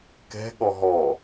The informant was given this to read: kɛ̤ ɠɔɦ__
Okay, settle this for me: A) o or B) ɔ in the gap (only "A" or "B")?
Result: B